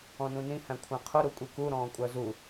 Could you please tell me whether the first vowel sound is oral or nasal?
nasal